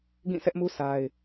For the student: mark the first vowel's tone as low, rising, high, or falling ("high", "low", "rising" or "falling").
falling